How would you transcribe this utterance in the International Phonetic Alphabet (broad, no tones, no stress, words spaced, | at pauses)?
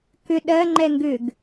kʏ ɗɜŋ͡ǃɛ ŋɡʏɡ